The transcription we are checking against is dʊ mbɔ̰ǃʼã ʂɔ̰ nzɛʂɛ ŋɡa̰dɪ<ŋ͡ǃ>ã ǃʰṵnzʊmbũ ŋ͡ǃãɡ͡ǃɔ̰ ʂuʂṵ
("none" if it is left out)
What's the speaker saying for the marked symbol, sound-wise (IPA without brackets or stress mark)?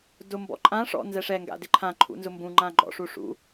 ǃʰ